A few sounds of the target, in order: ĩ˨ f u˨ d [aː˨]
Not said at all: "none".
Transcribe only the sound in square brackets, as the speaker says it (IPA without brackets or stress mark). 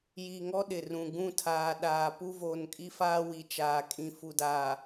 aː˨